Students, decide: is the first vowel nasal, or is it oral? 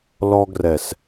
oral